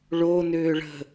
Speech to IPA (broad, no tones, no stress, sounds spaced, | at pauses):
ɭ o n ʏː ɭ ə̤